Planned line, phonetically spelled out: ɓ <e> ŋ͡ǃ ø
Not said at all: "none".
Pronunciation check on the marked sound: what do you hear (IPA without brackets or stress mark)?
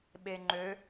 e